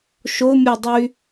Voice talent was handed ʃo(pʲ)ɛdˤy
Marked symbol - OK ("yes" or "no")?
no